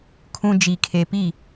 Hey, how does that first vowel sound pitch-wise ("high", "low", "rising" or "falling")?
low